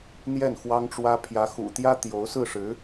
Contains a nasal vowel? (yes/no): no